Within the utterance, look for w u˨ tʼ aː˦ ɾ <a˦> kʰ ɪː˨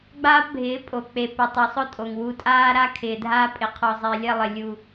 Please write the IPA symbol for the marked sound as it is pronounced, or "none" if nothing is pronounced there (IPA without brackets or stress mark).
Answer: a˦